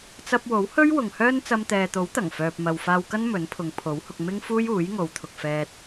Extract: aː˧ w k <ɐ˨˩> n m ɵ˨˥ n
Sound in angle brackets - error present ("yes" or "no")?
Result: yes